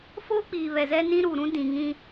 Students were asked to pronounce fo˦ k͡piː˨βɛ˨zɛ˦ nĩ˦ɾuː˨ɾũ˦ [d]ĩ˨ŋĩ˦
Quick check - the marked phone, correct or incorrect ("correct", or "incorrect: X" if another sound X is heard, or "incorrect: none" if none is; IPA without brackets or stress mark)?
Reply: correct